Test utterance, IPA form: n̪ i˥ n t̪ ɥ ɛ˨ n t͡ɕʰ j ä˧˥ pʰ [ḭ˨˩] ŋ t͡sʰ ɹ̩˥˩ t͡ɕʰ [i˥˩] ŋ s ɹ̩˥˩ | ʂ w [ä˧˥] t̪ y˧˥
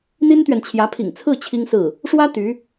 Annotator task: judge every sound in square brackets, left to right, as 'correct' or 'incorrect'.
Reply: correct, incorrect, incorrect

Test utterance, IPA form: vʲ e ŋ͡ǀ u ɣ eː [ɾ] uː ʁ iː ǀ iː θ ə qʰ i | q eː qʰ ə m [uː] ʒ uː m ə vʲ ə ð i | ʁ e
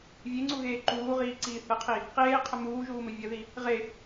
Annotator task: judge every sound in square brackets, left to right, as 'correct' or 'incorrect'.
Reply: incorrect, correct

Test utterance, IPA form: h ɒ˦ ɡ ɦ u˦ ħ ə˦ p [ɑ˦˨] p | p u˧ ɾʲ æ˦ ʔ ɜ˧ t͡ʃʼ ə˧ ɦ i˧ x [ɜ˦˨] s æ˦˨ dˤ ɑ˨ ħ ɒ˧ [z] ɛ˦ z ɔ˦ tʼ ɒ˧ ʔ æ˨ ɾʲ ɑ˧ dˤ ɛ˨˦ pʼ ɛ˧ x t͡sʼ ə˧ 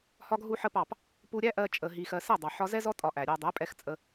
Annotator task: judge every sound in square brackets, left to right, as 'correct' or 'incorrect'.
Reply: correct, incorrect, correct

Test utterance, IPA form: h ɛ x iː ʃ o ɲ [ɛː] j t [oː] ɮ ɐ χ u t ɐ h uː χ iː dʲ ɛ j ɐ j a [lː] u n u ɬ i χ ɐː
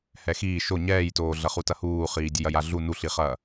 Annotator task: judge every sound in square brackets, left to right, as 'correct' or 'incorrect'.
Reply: correct, correct, incorrect

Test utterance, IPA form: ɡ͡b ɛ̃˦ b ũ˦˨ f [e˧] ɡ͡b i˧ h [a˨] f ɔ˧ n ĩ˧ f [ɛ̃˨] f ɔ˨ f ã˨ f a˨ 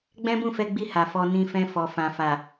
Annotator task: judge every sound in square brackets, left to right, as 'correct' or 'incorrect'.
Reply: incorrect, correct, incorrect

